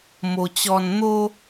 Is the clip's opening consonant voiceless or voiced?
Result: voiced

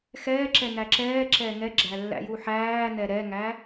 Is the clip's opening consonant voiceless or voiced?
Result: voiceless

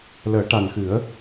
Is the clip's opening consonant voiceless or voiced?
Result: voiced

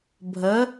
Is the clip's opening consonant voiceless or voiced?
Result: voiced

